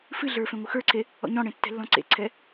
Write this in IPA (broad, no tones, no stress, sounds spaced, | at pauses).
f ɨ ɮ ə˞ f ẽ ŋʷ ɨ x ə˞ ǀʰ e | ɔ̰ ɲ ɔ̃ ɽ ẽ tː ɛ̤ lː ɔ̃ ǀ ḛ ǀʰ ɛ